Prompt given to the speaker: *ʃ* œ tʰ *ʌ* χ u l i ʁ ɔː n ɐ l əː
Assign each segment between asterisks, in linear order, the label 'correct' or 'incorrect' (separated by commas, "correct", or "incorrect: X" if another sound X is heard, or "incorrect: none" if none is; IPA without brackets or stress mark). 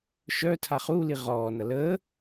correct, incorrect: a